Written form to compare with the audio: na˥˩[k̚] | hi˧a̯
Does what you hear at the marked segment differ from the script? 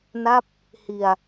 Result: yes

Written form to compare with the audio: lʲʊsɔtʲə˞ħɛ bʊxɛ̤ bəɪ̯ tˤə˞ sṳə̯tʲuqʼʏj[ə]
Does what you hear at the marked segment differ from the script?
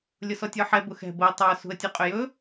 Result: yes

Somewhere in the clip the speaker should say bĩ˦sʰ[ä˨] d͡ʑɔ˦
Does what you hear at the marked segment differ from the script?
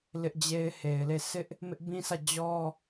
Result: yes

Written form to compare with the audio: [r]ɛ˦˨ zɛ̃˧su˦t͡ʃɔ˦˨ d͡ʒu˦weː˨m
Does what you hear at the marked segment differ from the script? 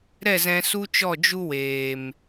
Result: yes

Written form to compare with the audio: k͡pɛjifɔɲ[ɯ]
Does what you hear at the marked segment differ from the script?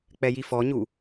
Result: yes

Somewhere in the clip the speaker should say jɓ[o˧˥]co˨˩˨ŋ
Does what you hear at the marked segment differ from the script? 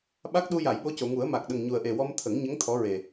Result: no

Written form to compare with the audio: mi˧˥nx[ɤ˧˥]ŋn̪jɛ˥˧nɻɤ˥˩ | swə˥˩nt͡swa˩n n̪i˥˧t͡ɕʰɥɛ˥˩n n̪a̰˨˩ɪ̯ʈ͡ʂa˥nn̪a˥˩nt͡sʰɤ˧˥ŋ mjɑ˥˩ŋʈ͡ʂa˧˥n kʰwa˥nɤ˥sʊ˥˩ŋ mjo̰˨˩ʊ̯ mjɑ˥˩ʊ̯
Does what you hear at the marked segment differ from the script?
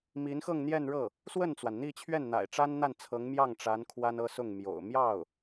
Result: yes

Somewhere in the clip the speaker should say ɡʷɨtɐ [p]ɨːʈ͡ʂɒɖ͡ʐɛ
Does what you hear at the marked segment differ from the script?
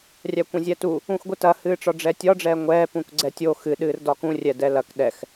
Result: yes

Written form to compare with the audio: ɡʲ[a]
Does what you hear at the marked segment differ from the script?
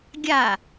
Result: no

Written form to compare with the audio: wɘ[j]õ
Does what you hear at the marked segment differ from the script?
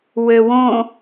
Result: yes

